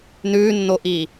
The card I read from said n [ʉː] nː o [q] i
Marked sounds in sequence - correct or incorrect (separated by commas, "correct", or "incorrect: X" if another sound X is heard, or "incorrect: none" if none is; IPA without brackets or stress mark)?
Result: correct, incorrect: ʔ